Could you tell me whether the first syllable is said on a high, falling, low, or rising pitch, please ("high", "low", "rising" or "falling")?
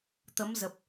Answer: rising